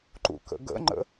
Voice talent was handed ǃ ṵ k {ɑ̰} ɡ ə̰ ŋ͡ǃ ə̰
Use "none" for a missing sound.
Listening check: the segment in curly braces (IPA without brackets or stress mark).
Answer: ə̰